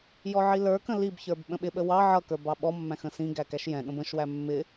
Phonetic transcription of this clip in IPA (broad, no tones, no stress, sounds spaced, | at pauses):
j ɔ ʕ i l ə˞ k ə̃ l i b ç ə˞ b ɓ ə̃ ɓ ɪ ɓ ə w ɑ ʕ ʌ k ə˞ b ɑ ɓ ɔ mː æ̃ x ə̃ s ĩ ɡ æ k æ ʃ j ɛ̃ ɠ ə̃ b ə̃ ʃ w æ mː ɪ